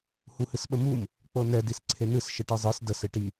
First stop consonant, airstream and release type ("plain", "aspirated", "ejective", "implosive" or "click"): implosive